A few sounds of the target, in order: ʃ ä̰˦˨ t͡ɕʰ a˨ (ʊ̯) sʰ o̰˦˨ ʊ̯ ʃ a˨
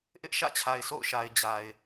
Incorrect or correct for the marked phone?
incorrect: ɪ̯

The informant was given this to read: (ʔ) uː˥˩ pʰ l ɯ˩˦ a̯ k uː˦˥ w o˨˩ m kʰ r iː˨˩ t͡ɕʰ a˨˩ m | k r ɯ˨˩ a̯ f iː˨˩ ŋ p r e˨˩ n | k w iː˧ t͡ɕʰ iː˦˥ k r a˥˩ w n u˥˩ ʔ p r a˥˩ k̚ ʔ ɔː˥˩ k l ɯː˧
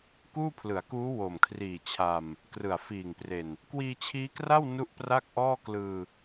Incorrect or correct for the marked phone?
incorrect: k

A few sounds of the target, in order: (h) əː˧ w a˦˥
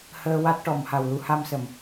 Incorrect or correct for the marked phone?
correct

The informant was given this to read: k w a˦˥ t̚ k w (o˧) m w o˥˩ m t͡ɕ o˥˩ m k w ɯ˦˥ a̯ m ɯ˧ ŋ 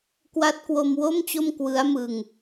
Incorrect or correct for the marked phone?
correct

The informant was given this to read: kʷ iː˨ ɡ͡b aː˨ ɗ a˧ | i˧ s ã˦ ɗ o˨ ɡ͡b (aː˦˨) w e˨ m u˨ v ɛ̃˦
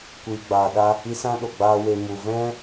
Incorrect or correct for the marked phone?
incorrect: aː˧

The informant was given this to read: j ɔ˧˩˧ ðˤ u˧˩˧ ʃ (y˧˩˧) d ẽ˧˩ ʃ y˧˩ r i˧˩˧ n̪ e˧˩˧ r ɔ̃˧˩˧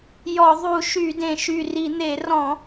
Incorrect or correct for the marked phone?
correct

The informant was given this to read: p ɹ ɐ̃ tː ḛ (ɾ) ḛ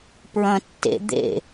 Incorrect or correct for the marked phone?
incorrect: d̪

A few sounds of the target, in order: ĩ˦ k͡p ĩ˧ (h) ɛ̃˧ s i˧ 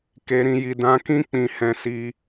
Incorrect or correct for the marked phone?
correct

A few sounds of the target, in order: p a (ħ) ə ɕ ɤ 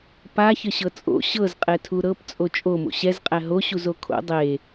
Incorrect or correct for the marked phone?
incorrect: ç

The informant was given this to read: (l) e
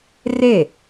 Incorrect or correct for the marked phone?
incorrect: r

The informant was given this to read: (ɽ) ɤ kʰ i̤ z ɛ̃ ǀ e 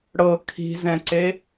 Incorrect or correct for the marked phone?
correct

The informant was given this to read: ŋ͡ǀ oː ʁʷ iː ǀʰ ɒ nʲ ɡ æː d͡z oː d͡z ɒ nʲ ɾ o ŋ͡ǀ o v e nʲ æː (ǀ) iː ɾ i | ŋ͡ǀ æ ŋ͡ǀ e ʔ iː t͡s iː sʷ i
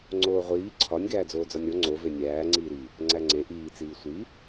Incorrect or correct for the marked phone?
incorrect: ŋ͡ǀ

